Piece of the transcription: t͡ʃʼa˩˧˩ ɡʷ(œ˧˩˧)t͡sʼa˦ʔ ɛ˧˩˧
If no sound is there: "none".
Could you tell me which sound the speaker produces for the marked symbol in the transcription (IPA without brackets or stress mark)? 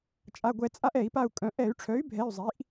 ɛ˧˩˧